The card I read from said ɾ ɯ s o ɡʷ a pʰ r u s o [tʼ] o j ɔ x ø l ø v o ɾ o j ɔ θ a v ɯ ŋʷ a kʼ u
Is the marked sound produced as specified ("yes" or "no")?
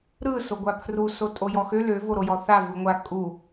yes